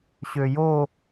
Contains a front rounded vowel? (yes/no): yes